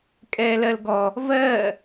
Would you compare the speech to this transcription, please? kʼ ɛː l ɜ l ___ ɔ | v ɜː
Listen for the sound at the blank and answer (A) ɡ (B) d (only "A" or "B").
A